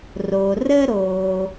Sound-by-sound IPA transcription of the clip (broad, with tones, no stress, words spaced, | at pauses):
ro˩rə˥ɾo˩